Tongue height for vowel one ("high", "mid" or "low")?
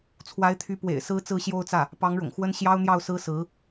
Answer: low